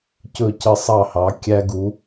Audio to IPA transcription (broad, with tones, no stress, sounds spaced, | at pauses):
c ɵ˧˩ c ə˧ sˤ ɑ˧˩ h ɑ˩˧ kʲ æ˧ ɡ u˩˧